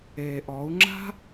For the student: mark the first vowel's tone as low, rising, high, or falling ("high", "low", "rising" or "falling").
low